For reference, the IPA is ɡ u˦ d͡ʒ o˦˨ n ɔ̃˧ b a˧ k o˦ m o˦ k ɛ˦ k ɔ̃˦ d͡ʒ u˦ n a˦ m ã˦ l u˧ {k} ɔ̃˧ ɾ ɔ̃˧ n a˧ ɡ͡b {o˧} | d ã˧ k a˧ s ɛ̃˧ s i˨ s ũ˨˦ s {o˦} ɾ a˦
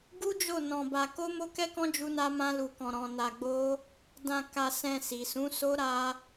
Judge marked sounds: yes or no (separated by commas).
yes, no, yes